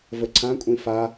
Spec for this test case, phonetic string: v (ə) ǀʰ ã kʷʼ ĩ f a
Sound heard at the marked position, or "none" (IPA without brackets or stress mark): ə